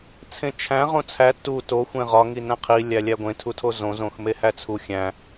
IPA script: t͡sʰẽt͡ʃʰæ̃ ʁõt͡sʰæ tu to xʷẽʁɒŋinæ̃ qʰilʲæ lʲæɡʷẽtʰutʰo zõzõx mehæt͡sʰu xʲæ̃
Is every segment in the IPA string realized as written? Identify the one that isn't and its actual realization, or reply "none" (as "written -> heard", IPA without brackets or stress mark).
none